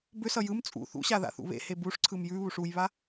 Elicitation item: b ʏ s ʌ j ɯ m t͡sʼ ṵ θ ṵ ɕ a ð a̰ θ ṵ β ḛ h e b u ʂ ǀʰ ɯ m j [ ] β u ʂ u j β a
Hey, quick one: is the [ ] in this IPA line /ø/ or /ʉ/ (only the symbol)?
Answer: ʉ